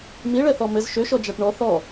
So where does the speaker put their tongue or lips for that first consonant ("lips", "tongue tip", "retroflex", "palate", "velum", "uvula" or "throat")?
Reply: lips